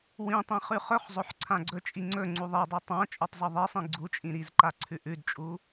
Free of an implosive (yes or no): yes